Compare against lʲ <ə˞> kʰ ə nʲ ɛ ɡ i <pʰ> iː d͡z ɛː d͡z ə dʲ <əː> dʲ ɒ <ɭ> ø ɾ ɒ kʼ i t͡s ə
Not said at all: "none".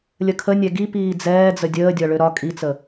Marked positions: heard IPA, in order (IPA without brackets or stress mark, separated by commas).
ə, p, əː, ɭ